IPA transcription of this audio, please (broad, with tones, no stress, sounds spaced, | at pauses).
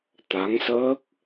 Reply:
t̪ a˨˦ ŋ s əː˦˥ k̚